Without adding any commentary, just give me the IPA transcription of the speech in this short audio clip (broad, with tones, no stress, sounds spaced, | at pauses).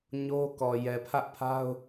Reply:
ɲ o˦ k ɔ˨ j ɛ˨ pʰ ä˦ ʔ pʰ a˦ ʊ̯